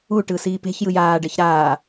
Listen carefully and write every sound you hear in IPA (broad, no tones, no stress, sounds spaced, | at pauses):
u ʈ ɯ s iː p e̤ ç j ɯ j aː ɖ ɛ ç ɾ aː